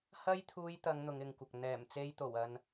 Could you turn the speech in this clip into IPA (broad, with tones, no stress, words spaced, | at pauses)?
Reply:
hɐ˥jt̪ʰuː˧jt̪ɐ˨˧ŋ n̪ʊ˨˧ŋɪ˨ŋkʷɐ˨k̚ n̪ɛː˨˩mt͡se˧jt̪o˨˩w ɐ˧n